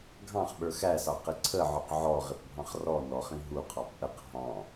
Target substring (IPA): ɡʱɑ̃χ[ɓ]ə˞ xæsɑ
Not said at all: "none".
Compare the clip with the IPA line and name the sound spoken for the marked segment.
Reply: ɓ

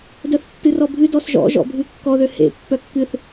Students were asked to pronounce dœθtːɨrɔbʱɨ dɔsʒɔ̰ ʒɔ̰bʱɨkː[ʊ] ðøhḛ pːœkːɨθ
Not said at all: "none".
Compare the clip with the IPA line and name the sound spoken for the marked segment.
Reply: ɔ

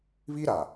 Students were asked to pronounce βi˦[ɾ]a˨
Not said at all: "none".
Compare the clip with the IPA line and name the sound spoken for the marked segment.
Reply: ɾ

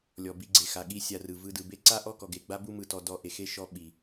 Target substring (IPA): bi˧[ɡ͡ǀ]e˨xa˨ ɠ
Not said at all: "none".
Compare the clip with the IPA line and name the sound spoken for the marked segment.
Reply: ɡ͡ǀ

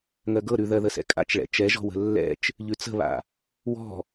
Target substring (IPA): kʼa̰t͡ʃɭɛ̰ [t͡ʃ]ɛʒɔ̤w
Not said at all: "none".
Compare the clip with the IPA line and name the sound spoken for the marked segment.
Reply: t͡ʃ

